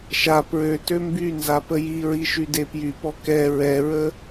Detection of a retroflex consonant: absent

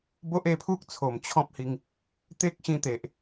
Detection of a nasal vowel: present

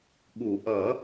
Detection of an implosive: present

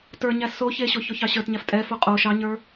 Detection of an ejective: present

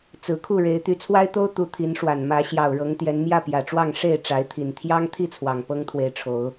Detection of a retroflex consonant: present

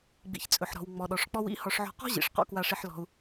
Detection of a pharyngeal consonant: present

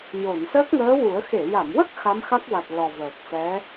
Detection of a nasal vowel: absent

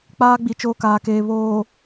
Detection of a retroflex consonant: absent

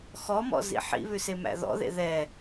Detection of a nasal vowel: absent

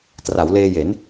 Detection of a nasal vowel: absent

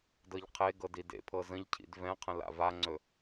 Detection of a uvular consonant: present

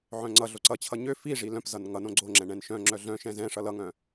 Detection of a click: present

